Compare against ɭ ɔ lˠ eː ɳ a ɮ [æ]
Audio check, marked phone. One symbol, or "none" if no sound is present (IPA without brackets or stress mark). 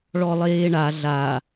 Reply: a